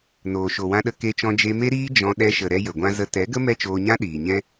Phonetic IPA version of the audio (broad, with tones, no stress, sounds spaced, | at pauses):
n oː˨ ʃ o˨ w ã˧ ɗ ə˧ k e˧ t͡ʃ ɔ̃˧ d͡ʒ e˧ m e˦ ɾ iː˦ d͡ʒ ɔ̃˧ ɗ ɛ˧ ʃ ə˨ ɾ ɛ˧ j ə˨ ɡʷ ã˧ z ə˧ t ɛ˨˦ ɡ ə˦ m ɛ˦ t͡ʃ oː˧ ɲ ã˦ ɗ iː˨ ɲ ɛ̃˦